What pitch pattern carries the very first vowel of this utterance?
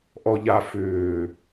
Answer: low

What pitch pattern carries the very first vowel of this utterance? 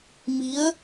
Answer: rising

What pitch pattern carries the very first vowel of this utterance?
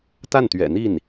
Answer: falling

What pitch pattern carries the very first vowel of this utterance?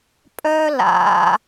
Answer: high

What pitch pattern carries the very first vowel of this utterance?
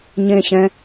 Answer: falling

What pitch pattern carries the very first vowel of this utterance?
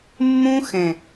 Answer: high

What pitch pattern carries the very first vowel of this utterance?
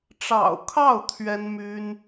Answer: low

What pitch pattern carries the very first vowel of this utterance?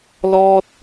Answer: high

